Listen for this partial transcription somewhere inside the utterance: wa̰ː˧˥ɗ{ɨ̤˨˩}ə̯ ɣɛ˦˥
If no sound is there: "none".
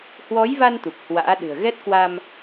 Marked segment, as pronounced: ɨ̤˨˩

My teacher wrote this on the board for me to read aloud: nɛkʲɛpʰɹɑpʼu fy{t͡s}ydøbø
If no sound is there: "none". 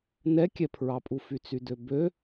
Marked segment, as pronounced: t͡s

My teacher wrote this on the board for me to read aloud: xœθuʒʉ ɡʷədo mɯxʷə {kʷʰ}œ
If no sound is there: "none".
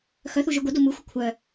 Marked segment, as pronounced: kʷʰ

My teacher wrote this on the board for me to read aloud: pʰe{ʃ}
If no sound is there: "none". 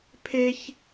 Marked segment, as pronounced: ç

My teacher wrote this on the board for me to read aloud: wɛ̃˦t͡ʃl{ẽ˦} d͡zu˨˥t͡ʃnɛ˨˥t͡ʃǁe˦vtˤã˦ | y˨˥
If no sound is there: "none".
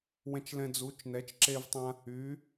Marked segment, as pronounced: ɛ̃˦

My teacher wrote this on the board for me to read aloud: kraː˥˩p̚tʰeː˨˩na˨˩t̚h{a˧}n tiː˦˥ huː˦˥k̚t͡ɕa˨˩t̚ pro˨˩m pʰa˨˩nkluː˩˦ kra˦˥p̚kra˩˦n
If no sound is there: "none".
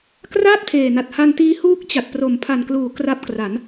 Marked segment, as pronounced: a˧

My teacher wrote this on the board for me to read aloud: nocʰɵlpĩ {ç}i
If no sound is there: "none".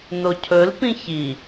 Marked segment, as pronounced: ç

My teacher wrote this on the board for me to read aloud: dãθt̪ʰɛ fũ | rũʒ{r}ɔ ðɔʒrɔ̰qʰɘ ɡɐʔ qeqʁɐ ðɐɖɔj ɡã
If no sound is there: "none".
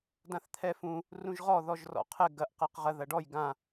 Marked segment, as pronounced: ʁ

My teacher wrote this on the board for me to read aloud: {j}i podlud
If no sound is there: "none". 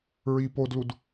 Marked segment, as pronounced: ɹ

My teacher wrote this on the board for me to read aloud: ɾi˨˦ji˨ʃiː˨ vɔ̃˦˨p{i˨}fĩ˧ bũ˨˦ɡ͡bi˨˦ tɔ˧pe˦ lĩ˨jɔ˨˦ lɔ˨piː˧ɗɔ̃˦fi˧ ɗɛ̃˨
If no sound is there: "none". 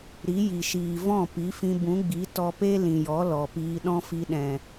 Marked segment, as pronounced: i˨˦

